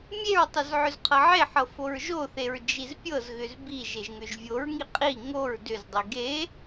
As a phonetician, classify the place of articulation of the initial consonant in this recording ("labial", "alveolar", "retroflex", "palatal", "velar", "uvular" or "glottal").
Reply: labial